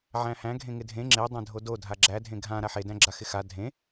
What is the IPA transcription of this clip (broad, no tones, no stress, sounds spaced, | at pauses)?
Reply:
ʕ æ̃ h æ̃ ɡʱ ẽ ŋ ɪ dʱ ẽ ŋ͡ǁ e dˤ æ̃ dʱ o d o dʱ a ɡ͡ǁ æ dʱ ẽ ɡʱ ã ɾ a ħ e d æ̃ ɡ͡ǁ a x ɪ x a dʱ ẽ